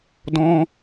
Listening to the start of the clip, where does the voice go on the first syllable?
high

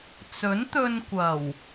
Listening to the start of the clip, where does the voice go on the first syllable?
rising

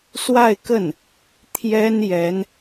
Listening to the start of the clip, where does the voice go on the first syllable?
falling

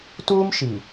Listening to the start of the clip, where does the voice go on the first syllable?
high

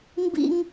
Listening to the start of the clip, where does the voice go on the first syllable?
high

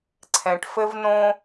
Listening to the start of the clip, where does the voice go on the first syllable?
low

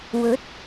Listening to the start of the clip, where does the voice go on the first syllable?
rising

